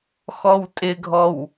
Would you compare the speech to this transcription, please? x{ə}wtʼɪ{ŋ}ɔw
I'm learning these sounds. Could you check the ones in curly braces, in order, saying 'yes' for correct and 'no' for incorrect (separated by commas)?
no, no